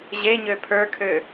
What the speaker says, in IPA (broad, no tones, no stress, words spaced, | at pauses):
ʑeɲø pʰə˞kʰø